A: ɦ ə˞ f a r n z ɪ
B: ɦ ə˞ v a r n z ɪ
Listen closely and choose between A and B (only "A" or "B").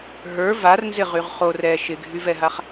B